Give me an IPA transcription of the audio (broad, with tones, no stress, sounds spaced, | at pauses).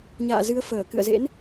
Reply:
ɲ a̰ː˧˨ z ɨ˨˦ ə̯ f əː˧˩ k ɨ̰˧˨ ə̯ z ḛ˧˥ n